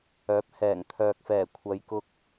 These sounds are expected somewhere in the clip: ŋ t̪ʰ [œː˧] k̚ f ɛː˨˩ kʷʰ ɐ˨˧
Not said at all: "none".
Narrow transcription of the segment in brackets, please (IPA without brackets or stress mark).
œː˨